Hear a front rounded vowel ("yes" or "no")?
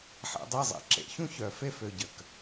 yes